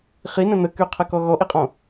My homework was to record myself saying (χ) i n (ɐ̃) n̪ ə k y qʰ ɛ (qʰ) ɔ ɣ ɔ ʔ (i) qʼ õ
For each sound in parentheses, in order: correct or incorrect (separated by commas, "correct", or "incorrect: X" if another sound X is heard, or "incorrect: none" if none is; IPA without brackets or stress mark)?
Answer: correct, incorrect: ə̃, incorrect: k, correct